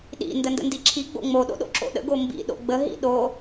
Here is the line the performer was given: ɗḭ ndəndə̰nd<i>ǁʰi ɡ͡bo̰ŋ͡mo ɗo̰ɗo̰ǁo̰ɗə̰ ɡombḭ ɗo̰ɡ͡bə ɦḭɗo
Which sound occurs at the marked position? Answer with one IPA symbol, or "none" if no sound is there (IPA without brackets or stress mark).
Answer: i